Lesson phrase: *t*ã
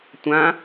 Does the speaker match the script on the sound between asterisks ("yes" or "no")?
no